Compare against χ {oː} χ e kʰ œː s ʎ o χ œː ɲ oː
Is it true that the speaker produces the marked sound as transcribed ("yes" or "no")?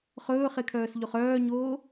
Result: no